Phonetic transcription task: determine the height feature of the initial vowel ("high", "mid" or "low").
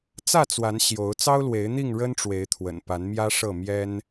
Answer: low